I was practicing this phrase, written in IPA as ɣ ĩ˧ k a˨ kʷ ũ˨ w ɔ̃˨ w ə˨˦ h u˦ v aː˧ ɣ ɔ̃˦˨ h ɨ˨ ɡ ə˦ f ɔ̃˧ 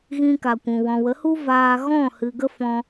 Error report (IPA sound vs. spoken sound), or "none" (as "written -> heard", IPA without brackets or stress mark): none